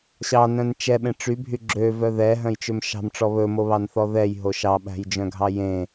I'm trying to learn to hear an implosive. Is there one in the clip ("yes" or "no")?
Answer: yes